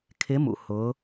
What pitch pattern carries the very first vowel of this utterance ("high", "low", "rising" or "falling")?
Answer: rising